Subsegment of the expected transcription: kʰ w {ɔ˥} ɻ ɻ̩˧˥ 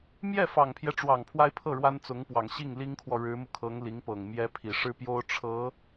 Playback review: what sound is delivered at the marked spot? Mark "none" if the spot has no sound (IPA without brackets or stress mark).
ɔ˨